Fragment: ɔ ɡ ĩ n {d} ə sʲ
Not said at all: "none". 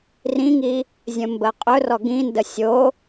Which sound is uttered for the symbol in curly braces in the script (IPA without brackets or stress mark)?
d